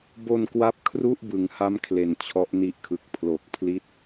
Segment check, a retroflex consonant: absent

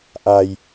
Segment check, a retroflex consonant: absent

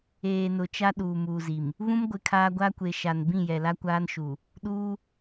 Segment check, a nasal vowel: present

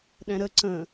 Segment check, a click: present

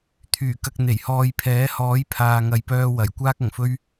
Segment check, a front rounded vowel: present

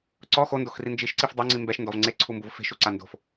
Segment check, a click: present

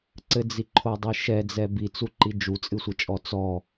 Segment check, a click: present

